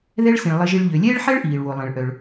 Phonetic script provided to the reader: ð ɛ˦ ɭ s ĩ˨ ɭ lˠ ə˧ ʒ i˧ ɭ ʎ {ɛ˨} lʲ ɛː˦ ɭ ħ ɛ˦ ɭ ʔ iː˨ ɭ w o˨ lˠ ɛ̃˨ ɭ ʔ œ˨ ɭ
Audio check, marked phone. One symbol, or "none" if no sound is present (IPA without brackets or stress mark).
ø˨